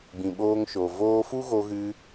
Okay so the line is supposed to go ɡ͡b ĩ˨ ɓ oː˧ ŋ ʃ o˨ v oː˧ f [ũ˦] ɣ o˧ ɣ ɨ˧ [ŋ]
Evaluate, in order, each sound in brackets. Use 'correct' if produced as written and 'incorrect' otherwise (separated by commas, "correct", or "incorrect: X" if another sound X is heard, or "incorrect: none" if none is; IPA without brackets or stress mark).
incorrect: u˦, incorrect: none